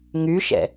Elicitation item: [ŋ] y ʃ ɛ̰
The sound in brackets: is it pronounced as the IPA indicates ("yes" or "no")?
yes